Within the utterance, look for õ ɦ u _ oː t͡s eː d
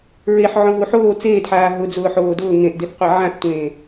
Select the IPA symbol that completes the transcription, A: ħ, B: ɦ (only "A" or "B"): A